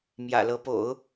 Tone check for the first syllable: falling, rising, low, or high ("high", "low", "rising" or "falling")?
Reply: low